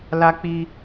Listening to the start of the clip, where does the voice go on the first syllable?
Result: high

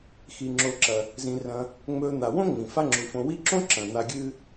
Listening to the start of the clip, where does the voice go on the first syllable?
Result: low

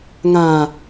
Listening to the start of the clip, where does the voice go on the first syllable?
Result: low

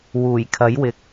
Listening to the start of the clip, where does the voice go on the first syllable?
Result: low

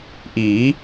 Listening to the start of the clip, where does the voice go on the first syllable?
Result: rising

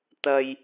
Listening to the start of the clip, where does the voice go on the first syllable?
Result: low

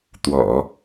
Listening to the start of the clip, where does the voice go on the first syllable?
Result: low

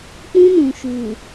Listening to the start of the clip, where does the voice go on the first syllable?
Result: high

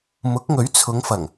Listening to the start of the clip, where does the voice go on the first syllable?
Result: rising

